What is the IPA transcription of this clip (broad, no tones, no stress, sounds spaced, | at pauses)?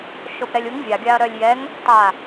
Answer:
ʃ o p ɾ ɛ lʲ u ŋ vʲ a ɡʲ a ɐ̯ ɾ œ lʲ j ɛ ŋ | tˤ a